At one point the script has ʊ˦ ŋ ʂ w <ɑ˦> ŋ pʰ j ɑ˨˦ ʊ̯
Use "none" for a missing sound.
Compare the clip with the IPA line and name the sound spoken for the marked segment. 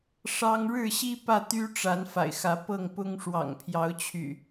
ɑ̰˨˩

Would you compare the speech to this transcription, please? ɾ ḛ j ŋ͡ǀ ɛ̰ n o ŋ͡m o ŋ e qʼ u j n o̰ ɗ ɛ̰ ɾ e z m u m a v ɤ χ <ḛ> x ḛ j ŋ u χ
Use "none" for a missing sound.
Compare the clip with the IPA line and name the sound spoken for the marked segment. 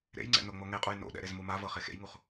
e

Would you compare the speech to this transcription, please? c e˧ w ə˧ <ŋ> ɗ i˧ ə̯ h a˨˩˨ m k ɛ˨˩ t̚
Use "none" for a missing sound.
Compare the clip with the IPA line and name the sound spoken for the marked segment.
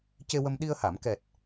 m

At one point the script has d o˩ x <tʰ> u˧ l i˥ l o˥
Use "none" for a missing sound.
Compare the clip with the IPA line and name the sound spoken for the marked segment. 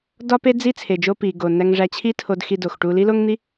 ʈ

